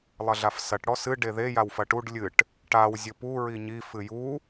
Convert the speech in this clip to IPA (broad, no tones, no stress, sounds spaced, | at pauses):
lˠ ɐ ɮ a f s ɐ ʈ ɽ ɔ s ɨ ɖ e ð e j a w f ɐ ʈ u ɖ lʲ ɨ ʈ | ʈ a w zʲ ɘ p u ɹ i ɲ i f ɨ j u